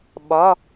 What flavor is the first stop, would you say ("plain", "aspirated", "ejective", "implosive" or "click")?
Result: implosive